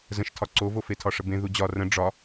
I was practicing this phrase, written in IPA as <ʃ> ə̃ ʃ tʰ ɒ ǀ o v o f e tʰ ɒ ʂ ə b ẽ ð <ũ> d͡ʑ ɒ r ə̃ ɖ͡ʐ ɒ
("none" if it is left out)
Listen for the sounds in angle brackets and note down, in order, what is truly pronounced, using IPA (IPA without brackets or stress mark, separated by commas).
z, u